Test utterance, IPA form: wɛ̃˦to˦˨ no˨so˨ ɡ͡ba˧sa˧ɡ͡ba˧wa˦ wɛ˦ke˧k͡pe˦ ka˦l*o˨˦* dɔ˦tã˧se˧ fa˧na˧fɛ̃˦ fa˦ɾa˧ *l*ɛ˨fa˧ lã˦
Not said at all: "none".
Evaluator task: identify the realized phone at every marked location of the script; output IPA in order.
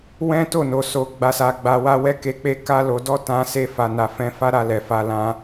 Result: o˧, l

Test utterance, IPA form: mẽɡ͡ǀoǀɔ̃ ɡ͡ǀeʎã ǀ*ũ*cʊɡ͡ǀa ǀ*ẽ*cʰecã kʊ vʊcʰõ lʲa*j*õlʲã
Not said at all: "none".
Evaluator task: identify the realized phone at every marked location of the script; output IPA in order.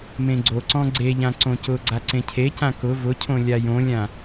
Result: õ, ẽ, j

